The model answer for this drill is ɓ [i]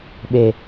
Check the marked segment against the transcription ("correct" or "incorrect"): incorrect